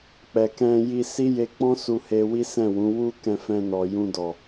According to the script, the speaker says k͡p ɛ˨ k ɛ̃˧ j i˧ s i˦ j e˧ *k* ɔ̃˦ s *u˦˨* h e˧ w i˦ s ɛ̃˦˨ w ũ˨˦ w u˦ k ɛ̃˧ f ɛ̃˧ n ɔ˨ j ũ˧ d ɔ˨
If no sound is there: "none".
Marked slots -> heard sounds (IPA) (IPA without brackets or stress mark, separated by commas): k͡p, u˧